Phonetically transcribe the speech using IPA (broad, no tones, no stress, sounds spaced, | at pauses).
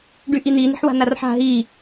ɖ y ʔ i n̪ i n̪ i̤ ħ w a̤ n a r ħ a̤ ɦ i